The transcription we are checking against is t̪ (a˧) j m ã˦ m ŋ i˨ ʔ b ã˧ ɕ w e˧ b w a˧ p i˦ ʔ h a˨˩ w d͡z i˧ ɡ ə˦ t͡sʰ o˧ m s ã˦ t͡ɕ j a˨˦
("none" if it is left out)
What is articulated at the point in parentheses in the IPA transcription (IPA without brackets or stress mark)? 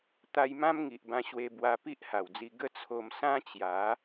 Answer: a˧